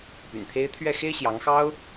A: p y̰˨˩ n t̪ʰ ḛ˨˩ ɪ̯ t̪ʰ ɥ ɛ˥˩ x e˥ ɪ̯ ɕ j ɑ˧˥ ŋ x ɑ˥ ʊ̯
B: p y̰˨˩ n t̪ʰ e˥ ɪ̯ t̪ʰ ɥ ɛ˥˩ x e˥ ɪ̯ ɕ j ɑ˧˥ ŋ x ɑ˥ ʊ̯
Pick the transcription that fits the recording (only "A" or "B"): B